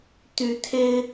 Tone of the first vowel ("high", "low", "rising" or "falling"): rising